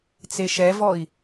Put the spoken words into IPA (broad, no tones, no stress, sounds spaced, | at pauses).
t͡s e ʃ ɛ v ɔ i̯